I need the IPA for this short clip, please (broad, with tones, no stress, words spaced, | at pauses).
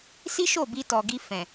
si˦ʃo˦˨ bi˧tɔ˨ɡi˧ fɛ̃˨